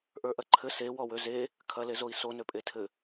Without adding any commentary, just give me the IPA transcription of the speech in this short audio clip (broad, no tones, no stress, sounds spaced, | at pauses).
ʔ ə˞ ʔ ɐ ǃʰ ɘ s e w ɔ w ø z e | kʰ ɐ l e z o i̯ s o n ø pʼ e tʰ ɘ